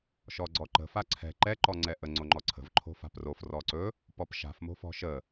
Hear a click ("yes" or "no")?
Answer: yes